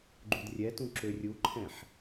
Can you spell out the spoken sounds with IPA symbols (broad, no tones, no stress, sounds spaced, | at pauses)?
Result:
ɡ͡ǃ u d rʲ ɛ t ũ ǁ ø rʲ u ǃʰ ɛ̃ ħ